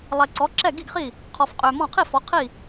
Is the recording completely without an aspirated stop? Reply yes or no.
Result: no